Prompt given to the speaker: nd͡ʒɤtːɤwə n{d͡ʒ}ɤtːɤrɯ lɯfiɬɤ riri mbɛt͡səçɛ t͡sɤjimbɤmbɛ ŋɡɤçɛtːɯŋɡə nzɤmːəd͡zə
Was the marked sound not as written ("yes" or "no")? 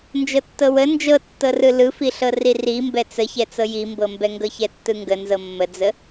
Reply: no